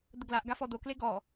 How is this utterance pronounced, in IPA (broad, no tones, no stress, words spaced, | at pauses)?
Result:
d̪əɡlaʔɡa fɔd̪okle ɡɔ